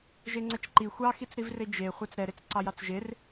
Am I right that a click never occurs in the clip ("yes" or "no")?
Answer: no